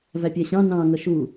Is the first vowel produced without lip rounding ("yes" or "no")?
yes